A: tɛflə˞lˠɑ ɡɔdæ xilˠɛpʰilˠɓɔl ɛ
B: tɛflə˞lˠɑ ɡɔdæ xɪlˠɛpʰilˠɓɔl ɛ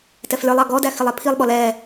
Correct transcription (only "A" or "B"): B